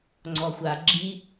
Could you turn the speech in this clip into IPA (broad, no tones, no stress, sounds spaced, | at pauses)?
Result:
ŋ͡ǀ ɔ xʷ a ɡ͡ǁ i